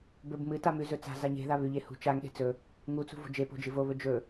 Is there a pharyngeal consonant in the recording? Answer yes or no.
no